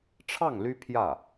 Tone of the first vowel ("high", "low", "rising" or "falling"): falling